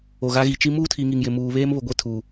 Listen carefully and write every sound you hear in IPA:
o˨ ɣ a˦ ɣ i˨ t͡ʃ i˦ m uː˦ tʰ i˨ ŋ i˨ ŋ j ɪ˨ m uː˨ β eː˦ m β ʊ˨ ɡʷ e˦ tʰ u˨

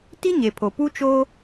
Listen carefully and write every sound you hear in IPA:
t i˦ ɲ e˨ pʰ o˨ p u˦ t͡ʃ oː˦

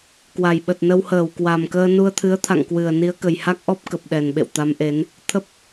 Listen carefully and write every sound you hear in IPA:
k w a˨˩ j ɓ ə˨˩ t̚ n ə˧ w h əː˧˩ w k w a˨˩ m k əː˧ n u˧ ə̯ t̪ʰ ɨ˨˦ ə̯ t̪ʰ a̰˧˨ ŋ k w ɨ˨˩ ə̯ n i˨˦ ə̯ k ə˨˩ j h a˦˥ k̚ ʔ ɔ˦˥ p̚ k ə˨˩ p̚ ɗ ɛ˨˩ n ɓ ḛ˧˨ w t̪ a˨˦ m ʔ e˨˦ n | t̪ʰ ə˦˥ p̚

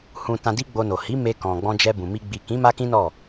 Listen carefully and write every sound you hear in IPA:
h ũ˨ t ã˧ d i˦ ɡ͡b o˧ n o˨ h i˨˦ m e˧ k ɔ̃˨ ɡ͡b ɔ̃˧ d͡ʒ ɛ˧ b ũ˨ m i˧ ɡ͡b i˨ k ĩ˨˦ m a˦ k ĩ˦ n ɔ˦˨

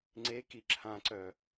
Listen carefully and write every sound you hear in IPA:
ŋ͡ǀ e k i ǁʰ ã ǀ œ

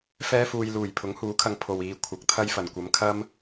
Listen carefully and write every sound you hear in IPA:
f ɛː˥ f uː˧ j l uː˨˩ j pʰ ʊ˨˥ ŋ h uː˨˥ kʰ ɐ˧ ŋ pʰ o˨ w iː˨˧ kʷʰ ɐ˨˥ k̚ t̪ʰ ɐ˥ j f ɐ˨˩ n kʷ ɐ˨˧ m kʰ ɐ˥ m

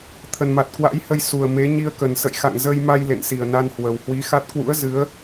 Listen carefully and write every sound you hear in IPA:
t̪ʰ ə˨˩ n m a˨˩ t̚ k w a̰˧˥ j h ə˧ j s u˨˩ ə̯ m e˨˦ ɲ i˧ ə̯ k ə˨˩ n s ə̰˧˨ j x a̰˧˨ ŋ z ə˧ j m a˧ j l ḛ˧˨ n s i˨˩ ə̯ n a˧ n h w ə˨˩ w h w i˨˦ x a˦˥ t̚ k w ṵ˧˥ ə̯ z ɨ˨˦ ə̯

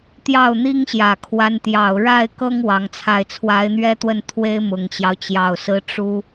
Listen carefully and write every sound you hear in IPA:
t̪ j ɑ˥˩ ʊ̯ n̪ i˥ ŋ ɕ j ä˨˩ kʰ w a˧˥ n t̪ j ɑ˨˩ ʊ̯ ɻ a˥˩ ɪ̯ k ɤ˥ ŋ w ɑ˧˥ ŋ t͡sʰ a˥˩ ɪ̯ t͡sʰ w a˧˥ ɪ̯ n̪ ɥ ɛ˥ t̪ w ə˥˩ n t̪ʰ w e˥ ɪ̯ m ʊ˨˩ ŋ t͡ɕ j ɑ˦ ʊ̯ t͡ɕ j ɑ˨˩ ʊ̯ s ɹ̩˥ ʈ͡ʂ u˥

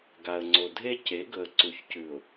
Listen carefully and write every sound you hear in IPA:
ɡ a˨ ə̯ ŋ͡ǀ o˨ dʱ e˦ c e˨˦ ɡ ɵ˨ ə̯ ǀ u˨ ç c ʉ˨ ʊ̯

